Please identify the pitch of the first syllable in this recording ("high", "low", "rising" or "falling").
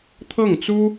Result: falling